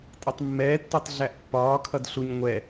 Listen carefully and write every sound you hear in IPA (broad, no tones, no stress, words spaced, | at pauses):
tʼʌtˤmːɛːtːotˤ ɮæʔpːɒː kʰʌdɬuɲ ŋʷɛ